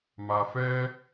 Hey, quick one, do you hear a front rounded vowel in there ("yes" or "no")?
no